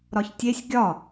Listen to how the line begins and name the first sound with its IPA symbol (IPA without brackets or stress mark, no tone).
ɾ